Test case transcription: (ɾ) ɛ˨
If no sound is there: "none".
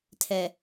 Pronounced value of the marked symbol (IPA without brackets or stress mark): tʰ